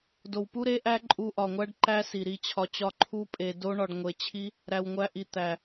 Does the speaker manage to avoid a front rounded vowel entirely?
yes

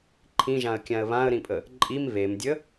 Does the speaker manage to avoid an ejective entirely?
no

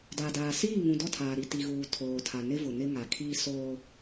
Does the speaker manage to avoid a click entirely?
yes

